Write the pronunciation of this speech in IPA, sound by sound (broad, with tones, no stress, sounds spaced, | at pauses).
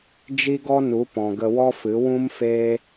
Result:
d͡ʒ i˦ ɡ ɔ˦ n u˨˦ p ɔ̃˨ ɡ ə˧ w ɔ˦ f ɨ˨˦ w ũ˧ m f eː˧